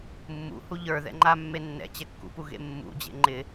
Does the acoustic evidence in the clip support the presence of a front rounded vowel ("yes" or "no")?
no